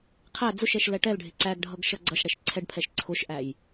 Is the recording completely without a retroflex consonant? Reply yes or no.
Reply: no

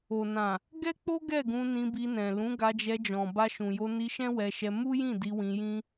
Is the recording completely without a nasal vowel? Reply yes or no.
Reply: no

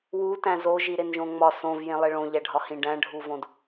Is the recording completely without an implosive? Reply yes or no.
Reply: yes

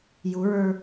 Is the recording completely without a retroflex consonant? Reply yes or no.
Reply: yes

